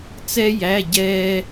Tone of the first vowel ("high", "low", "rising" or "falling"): high